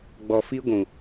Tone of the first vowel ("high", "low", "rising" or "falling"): low